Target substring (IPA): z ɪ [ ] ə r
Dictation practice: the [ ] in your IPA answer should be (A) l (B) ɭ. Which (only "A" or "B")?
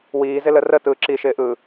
A